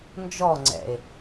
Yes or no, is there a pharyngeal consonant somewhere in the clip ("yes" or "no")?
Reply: no